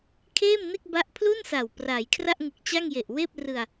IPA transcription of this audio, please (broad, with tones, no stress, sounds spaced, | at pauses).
kʰ eː˥˩ m n e˥˩ k̚ b a˦˥ ʔ pʰ l u˥˩ n s a˨˩ w p r a˩˦ j kʰ r a˥˩ ʔ ŋ ɯ˨˩ k̚ t͡ɕ a˥˩ ŋ j e˨˩ ʔ w eː˥˩ p̚ r ɯ˧ a̯